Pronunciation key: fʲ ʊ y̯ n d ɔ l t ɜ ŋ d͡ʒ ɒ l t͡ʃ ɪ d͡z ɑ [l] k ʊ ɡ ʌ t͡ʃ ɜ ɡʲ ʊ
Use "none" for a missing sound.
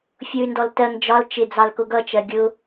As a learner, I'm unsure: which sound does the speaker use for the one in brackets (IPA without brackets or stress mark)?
l